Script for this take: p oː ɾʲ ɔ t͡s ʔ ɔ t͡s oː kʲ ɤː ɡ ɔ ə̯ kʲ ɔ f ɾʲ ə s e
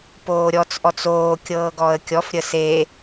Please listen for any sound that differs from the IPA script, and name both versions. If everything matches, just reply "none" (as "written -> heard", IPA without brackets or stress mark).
none